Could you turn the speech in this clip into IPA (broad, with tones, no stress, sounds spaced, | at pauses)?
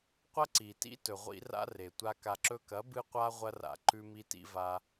qʷ ɐ˦ ǀ i˨ t ḭ˦ t ɵ˨ ʁʷ ḭ˧ r a̰˧ r e˨ tʷ a˧ k a˨ ǁ ɵ˧ k ɐ˨˦ b ɨ˧ qʷ a˧ ʁʷ ɐ˧ r a̰˨ ǃ ʉ˧ m i˧ t ḭ˧ v a˧